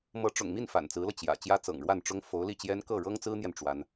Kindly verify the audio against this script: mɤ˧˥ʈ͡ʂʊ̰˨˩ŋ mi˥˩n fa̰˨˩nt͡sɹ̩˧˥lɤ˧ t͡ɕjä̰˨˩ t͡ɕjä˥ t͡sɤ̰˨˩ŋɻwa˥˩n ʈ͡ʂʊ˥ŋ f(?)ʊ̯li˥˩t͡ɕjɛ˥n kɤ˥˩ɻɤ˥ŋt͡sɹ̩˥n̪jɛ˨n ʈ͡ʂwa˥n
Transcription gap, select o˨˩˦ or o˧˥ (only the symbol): o˧˥